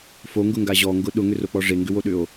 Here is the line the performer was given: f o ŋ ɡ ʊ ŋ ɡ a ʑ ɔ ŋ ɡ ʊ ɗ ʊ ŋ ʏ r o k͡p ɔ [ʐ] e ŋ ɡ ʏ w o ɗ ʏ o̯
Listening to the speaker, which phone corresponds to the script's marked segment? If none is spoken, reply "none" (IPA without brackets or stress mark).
ʐ